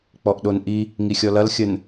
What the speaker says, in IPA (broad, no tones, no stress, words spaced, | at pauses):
k͡pɔʔɗonʔi | ŋixʲɔlɐl xʲən